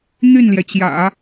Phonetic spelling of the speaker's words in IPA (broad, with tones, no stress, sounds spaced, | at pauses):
n̪ y˥˩ n l j ɛ˩ t͡ɕ j ä̰˨˩˦